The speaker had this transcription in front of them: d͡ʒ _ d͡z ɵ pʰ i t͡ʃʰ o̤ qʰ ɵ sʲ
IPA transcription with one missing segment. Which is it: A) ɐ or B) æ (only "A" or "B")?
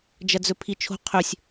A